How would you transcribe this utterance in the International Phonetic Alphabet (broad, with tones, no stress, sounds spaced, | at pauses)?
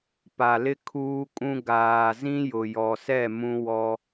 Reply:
p a˨ l ɪ˦ kʰ uː˦ kʼ ũ˦ ɡ aː˨ z ĩ˦ j ʊ˨ j ɔ˨ s ɛ˦˨ m ũ˦ w ɔ˦